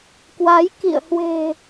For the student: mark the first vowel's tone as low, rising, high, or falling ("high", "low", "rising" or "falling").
rising